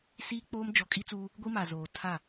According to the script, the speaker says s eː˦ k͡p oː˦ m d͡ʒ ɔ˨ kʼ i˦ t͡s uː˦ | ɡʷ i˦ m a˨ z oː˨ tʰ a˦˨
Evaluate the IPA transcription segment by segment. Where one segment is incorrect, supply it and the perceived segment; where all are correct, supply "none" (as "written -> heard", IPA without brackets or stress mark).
eː˦ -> iː˦